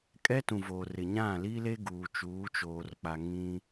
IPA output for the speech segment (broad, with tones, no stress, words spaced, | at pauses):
kʼɛ˦tũ˨ voː˨rɪ˨ɲã˦˨ liː˦le˦ ɡuː˨ t͡ʃuː˨˦t͡ʃoː˨rk͡pa˨ ŋĩ˦